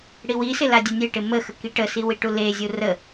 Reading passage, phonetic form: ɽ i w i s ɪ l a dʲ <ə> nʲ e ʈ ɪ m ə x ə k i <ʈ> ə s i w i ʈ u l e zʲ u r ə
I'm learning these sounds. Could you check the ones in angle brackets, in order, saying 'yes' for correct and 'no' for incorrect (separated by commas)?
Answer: yes, yes